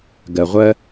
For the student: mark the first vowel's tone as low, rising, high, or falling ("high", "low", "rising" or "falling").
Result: low